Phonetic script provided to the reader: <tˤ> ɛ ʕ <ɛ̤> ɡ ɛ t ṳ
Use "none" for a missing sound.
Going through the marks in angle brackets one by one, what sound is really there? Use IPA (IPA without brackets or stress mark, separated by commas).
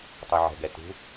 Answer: tˤ, ɛ̤